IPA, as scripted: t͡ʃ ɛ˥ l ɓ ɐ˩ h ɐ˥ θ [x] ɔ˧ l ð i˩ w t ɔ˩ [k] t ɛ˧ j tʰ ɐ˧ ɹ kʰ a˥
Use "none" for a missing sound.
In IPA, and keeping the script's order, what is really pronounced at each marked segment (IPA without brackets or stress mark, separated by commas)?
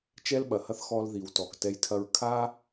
x, k